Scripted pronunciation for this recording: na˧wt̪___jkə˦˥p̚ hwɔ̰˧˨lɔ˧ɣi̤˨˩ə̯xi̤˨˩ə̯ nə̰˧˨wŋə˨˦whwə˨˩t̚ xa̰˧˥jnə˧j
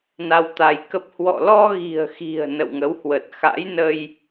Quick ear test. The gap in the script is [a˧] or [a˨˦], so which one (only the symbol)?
a˧